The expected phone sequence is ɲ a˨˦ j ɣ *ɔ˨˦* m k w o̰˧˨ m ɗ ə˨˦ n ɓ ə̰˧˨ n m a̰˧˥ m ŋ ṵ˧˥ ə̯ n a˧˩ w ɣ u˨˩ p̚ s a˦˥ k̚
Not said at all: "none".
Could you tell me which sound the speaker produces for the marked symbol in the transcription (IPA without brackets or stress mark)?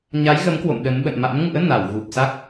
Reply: ə˨˦